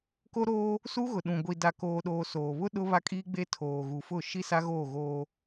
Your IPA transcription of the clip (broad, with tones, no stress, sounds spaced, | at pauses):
k o˦ ɾ oː˦ | s u˦ ɣ ʊ˨ ɗ ũ˨ ɡʷ i˨ d a˨ k oː˨ ɗ oː˨ s oː˨ β ʊ˦ ɗ ʊ˦ β a˦ kʼ iː˦ ɡ͡b e˦ tʰ oː˨ ɣ u˨ f ʊ˦˨ ʃ i˦ s a˦ ɣ oː˦˨ ɣ oː˦